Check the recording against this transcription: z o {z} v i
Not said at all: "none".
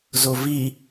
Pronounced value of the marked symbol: none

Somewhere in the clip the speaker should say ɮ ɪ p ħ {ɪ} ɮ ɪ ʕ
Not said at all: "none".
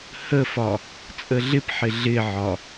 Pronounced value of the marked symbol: ɪ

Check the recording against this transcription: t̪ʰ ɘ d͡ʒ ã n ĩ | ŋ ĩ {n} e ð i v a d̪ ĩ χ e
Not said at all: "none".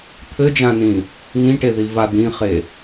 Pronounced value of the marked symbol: ʈ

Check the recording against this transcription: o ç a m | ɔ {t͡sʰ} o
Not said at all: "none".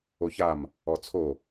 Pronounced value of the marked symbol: t͡sʰ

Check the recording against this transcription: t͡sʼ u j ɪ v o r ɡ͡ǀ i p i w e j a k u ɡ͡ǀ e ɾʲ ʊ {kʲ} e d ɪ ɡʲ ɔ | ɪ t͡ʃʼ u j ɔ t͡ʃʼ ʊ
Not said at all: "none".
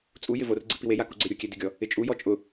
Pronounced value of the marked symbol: kʲ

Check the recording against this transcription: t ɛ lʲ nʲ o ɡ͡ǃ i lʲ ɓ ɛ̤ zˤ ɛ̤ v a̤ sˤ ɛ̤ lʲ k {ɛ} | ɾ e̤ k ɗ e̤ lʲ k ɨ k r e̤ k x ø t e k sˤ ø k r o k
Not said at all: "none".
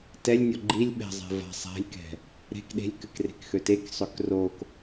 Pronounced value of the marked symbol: ɛ̤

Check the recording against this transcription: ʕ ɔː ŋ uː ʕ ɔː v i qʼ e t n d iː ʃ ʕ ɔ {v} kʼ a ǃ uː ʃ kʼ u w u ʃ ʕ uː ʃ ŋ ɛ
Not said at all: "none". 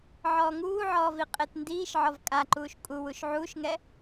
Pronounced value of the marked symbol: v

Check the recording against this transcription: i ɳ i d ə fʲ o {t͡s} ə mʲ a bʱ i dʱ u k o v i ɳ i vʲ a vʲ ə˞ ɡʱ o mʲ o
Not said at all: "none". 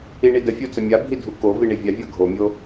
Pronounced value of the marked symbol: t͡s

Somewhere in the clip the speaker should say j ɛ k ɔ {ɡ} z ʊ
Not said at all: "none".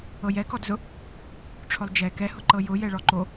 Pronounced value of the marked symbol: d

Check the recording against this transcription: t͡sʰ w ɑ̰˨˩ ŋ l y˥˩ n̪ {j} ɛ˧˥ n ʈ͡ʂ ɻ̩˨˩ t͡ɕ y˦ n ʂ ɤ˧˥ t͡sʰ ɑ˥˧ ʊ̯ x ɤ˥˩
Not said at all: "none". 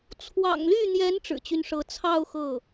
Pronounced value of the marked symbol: j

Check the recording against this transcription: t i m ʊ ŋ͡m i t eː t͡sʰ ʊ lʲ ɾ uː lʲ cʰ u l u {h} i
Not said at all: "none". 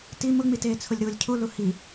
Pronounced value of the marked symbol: h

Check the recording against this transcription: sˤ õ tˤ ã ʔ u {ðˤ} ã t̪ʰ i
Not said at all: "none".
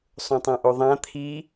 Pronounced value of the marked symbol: ðˤ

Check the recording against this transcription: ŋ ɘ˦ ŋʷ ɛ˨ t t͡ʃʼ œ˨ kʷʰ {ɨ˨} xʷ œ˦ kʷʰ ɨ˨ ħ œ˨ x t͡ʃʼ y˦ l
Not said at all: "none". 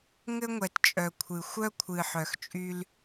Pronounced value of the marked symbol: ɨ˨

